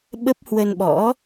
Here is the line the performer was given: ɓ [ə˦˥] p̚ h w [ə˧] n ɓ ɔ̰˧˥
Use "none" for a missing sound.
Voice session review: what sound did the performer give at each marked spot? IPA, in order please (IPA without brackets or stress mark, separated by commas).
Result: ə˦˥, ə˧